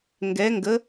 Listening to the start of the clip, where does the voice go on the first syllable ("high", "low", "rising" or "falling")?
rising